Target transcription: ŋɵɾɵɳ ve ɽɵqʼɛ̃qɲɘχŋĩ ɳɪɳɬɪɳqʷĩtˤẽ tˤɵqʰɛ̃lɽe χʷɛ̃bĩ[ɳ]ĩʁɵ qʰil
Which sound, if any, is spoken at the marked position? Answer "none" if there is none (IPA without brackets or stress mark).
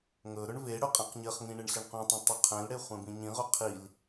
ɲ